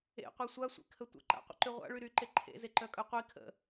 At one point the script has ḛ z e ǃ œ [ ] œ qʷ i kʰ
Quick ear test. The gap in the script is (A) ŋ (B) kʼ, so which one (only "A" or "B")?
B